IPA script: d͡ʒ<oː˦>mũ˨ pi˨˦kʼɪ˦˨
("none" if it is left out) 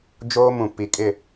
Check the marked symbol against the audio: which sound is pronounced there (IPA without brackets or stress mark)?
oː˦